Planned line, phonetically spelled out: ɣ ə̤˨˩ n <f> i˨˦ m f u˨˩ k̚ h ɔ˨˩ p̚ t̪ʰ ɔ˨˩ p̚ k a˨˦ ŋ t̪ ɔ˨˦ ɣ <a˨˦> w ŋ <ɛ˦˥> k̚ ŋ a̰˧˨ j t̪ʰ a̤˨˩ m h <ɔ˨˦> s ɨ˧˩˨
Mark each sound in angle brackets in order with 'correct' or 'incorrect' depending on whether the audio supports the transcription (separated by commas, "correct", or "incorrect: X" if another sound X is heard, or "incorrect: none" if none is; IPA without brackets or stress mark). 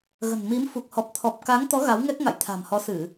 incorrect: m, correct, correct, correct